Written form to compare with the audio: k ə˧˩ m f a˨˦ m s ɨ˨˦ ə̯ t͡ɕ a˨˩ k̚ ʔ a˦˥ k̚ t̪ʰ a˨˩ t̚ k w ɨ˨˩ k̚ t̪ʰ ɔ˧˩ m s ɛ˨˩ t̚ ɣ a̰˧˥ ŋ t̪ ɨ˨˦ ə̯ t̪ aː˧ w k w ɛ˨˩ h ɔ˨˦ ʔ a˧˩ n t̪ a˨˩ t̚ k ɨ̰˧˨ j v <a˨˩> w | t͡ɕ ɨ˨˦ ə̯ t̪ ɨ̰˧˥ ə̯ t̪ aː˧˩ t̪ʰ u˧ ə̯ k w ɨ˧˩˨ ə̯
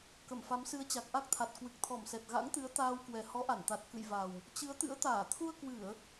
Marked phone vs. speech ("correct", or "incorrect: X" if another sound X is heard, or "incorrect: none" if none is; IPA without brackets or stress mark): correct